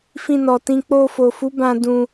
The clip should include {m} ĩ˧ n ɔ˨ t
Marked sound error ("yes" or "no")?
yes